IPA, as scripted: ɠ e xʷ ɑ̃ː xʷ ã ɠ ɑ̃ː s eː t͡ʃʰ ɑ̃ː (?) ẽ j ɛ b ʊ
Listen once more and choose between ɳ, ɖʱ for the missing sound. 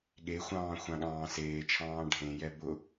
ɖʱ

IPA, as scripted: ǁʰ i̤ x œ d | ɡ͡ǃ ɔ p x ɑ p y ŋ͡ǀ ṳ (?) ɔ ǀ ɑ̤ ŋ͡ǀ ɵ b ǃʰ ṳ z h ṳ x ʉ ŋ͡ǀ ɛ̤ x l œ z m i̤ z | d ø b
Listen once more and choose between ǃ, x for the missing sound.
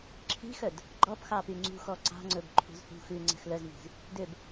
x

